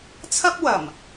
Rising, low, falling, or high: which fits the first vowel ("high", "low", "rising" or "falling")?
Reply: high